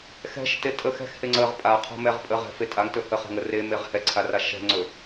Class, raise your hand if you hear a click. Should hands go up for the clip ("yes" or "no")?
yes